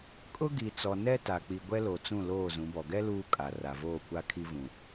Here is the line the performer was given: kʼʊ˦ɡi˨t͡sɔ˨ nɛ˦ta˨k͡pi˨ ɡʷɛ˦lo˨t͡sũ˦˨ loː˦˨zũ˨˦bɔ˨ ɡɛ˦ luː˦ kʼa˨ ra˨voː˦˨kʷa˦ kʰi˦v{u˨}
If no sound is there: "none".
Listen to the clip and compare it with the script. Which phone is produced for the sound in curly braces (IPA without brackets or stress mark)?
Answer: ũ˨